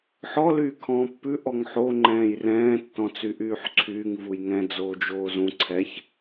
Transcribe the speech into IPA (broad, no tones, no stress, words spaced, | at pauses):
ħɔ lyːkʰɔ̃ːpːʉ ʔɔŋħo ŋ͡ǃɛ̃ːjrɛ̃ː tːɔ̃t͡syʔyːħǀʰyːŋ vujŋɛ̃ d͡zoːd͡ʒoːzũ ǀʰɛç